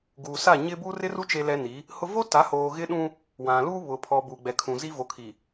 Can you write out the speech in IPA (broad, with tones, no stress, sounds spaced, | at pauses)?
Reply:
ɡ uː˨ s a˦˨ ɲ ɪ˦ b uː˦ r ɪ˦ r u˦ t͡ʃ e˦ l ɛ˦ n i˨˦ | h ʊ˦ v o˦ t a˨˦ h oː˨ ɣ ɪ˦ ɗ ũ˦ | w ã˨ l uː˦ β ʊ˨ pʰ ɔ˨ b uː˨ ɡ͡b ɛ˨ kʰ ũ˨ z i˦ v o˨ kʰ i˨